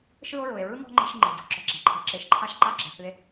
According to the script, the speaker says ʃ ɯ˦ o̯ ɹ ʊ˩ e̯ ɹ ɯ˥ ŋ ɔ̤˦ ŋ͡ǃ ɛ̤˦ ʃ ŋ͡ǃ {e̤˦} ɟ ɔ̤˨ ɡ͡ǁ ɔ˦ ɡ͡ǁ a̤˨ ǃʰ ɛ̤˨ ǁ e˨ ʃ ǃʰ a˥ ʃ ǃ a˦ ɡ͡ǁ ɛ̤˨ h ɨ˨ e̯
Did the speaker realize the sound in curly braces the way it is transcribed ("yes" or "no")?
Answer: no